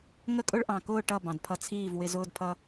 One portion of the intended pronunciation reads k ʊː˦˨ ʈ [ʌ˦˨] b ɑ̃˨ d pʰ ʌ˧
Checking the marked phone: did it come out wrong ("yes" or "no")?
no